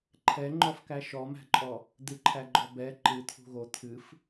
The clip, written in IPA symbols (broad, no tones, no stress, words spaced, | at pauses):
ǃʰɛŋ͡ǃɔfkæ ʃɔmæ̤ǃʼɔ | d̪ɨǃʰæɡ͡ǃɔ bɛ ǃɨt̪ʰṳ ɣo t̪ʰɨf